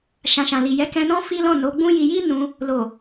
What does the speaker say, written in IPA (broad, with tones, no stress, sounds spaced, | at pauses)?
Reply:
ʃ ã˨ ʃ ã˨ l i˨ j ɛ˨˦ k ɛ̃˧ n ɔ̃˦ f i˦ l ɔ̃˦˨ n o˨˦ ɡ͡b ũ˦ j i˧ j i˦ n ũ˧ | l o˨